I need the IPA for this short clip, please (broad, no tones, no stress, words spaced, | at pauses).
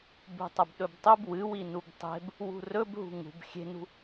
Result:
bṳtˤɐbɗɵbtˤɵb wɨwi nubtˤe̤b | wṳrɵbɦṳ ŋṳb xʲe̤nṳ